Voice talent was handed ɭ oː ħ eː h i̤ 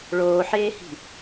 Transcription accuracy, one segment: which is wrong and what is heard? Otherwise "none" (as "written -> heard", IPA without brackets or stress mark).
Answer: none